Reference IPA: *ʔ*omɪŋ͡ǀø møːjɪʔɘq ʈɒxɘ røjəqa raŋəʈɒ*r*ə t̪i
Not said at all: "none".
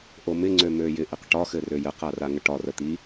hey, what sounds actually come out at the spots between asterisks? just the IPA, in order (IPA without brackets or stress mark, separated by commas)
ʔ, r